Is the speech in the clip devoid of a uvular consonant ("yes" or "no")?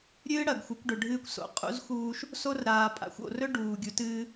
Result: no